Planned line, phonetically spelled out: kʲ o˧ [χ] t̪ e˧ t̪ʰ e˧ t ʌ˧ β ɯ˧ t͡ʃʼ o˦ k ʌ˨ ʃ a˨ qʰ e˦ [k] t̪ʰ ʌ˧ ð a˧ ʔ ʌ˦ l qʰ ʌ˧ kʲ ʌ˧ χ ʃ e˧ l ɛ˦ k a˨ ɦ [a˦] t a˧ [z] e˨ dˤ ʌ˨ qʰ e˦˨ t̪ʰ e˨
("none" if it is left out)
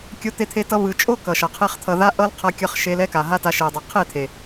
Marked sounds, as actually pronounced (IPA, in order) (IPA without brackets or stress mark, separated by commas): none, χ, a˦, ʃ